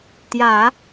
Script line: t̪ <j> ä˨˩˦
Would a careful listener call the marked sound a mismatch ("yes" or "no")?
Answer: no